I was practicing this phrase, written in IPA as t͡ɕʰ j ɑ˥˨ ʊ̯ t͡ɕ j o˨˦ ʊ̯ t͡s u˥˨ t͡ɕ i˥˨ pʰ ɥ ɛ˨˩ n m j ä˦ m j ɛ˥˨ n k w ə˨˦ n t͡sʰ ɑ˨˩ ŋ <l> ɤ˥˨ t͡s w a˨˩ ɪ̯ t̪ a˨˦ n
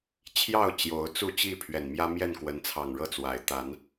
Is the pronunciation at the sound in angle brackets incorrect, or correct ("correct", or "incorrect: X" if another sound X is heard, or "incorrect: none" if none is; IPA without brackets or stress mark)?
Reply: incorrect: ɻ